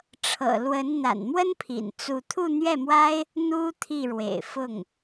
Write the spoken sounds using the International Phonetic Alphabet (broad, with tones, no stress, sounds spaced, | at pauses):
ʈ͡ʂʰ ɤ̰˨˩ l w ə˧˥ n n̪ a̰˨˩ n m w ə˥ n pʰ ḭ˨˩ n t͡s u˥˧ t̪ʰ u˥˧ n̪ ɥ ɛ˥˩ m w a˥ ɪ̯ | n̪ u˥ t̪ʰ i˥˩ ɻ w ḛ˨˩ ɪ̯ f ʊ˥˩ ŋ